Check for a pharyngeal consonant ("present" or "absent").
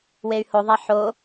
present